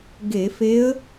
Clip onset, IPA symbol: ɡ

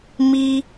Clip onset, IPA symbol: m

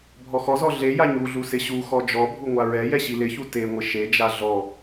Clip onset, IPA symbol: bʱ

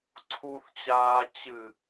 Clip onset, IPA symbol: ǀʰ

